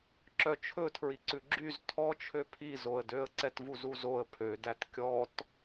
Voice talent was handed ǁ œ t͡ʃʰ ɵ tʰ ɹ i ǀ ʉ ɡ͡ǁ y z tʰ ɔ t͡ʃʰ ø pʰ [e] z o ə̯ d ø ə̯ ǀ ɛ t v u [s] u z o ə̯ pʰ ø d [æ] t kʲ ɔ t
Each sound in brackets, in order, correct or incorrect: incorrect, incorrect, correct

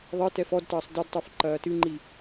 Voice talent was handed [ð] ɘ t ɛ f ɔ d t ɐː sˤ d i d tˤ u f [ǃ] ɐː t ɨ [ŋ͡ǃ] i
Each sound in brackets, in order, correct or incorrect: incorrect, correct, correct

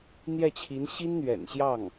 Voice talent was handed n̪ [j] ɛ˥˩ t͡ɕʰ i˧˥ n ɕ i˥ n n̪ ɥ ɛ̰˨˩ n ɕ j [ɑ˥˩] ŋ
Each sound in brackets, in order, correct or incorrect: correct, correct

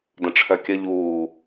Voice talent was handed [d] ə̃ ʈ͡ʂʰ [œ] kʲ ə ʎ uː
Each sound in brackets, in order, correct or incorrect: correct, correct

